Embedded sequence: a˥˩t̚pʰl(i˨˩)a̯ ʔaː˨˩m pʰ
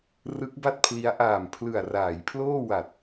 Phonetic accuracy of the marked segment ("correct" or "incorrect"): incorrect